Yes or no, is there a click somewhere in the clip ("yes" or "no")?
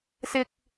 no